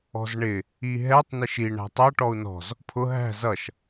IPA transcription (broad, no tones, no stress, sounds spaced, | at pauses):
ɔ̤ z ɳ ɪ | i ɦ ɛ tˤ n ɪ ʃ i ɳ æ̤ tˤ ʌ ʈ ɔ u̯ n ɔ̤ z | pʰ ʊ ɦ æ̤ z ʌ ʃ